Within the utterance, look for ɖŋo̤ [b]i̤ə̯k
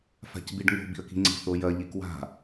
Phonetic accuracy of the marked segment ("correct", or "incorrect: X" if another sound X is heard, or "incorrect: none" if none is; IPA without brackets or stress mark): correct